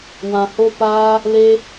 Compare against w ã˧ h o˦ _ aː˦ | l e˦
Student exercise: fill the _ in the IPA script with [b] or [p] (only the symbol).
p